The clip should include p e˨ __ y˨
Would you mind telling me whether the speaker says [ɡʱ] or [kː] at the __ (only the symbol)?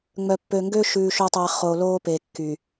kː